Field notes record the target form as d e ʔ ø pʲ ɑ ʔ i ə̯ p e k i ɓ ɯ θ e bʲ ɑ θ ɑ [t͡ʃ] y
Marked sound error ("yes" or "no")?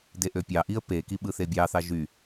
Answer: yes